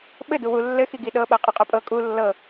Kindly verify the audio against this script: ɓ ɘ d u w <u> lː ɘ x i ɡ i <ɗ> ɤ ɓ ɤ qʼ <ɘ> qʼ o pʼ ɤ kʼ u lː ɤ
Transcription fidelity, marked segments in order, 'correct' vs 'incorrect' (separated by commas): correct, correct, correct